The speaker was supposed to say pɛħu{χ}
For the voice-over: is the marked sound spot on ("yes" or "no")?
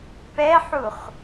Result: yes